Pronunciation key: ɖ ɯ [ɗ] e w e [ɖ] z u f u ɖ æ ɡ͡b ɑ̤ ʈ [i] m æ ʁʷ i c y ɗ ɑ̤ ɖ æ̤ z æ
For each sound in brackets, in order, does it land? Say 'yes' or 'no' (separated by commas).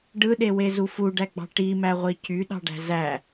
yes, no, yes